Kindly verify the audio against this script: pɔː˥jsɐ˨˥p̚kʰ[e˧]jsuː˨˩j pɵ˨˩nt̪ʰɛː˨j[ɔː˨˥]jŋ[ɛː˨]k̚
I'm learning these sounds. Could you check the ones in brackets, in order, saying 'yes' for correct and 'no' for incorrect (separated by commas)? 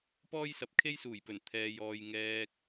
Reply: no, no, no